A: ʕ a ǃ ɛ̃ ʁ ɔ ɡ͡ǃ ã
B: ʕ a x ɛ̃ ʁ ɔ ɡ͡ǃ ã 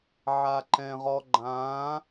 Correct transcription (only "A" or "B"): A